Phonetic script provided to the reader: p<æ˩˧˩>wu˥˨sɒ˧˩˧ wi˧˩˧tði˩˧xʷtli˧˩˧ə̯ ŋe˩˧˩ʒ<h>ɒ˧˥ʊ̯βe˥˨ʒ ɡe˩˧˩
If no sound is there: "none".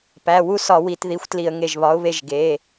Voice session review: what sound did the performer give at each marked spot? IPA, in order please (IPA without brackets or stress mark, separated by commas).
æ˩˧˩, β